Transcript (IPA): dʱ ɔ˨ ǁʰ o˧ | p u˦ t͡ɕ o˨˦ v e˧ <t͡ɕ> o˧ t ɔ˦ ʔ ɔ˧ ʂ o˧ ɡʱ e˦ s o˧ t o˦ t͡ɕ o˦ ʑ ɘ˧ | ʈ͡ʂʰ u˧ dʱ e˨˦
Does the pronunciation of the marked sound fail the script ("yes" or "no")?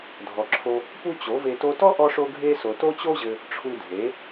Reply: yes